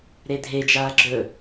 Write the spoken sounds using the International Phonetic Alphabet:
ɾ e dʱ e d͡ʒ aː ɡ͡ǁ ɵ

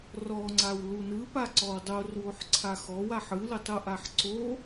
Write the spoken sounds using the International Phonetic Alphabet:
r ɔ ŋ͡ǀ a w l u n ɯ p a ǀ ɔ w dˤ o r w o ħ ǀʰ a x ɔ w a ħ ɯ l ɯ tˤ u ʔ a ħ ǀ o

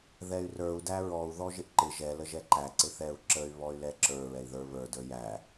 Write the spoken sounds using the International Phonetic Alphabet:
ð ɛ y̯ r ə˞ u̯ d æ ɹ ɔ u̯ ð ɔ ʒ ɪ ʔ ǃ ɪ ʒ ɛ l ə ʒ ɛ ǃ æ ǀ ɪ θ ɛ u̯ ǁ ə y̯ β ɔ y̯ l ɛ ǁ ə˞ ɹ ɛ i̯ ð ə˞ β ə˞ d ə˞ j æ

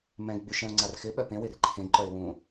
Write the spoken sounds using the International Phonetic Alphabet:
m ɛ̃ ɡ ɡ͡b y ʃ ɛ̃ ʊ̯ ŋ͡ǀ a r x ɪ ɓ œ p ẽ w ɪ r ǃʰ ẽ ɡ ǃ œ ɪ̯ w ũ

